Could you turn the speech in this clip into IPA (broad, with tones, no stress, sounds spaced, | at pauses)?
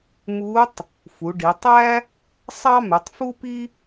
m u˧˥ tˤ | f u˩˧ ɖ i˩˧ tˤ æ˥ | sˤ ɑ˥ m ʉ˩˧ tˤ f u˥ p i˥